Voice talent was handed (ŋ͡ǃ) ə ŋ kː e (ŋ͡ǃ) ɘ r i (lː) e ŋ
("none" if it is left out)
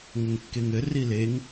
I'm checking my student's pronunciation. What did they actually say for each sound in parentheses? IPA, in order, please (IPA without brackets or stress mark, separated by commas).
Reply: ŋ, ŋ, l